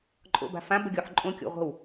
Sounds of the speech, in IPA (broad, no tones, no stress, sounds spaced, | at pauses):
ǃʼ o̰ b a̤ f ã b ə ɡʲ o ħ ǃʼ õ kʲ o̰ ʁʷ ə̤ w